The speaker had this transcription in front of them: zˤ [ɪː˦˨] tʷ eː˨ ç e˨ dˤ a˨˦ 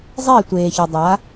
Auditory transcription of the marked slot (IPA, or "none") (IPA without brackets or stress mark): ɪː˦˨